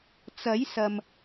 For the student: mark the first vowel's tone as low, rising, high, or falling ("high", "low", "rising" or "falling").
rising